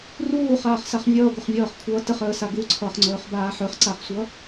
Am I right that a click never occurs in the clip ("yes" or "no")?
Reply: no